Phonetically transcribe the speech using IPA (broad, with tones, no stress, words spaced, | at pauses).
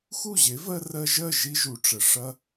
xu˦˨ʑe˨˦vɜ˧ rɜ˧ʒɜ˦˨ ʒi˦ʒu˨ʈ͡ʂə˨ ʂɐ˦